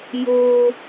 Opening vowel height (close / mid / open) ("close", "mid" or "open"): mid